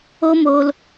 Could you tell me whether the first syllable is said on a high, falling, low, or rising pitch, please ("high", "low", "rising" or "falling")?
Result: high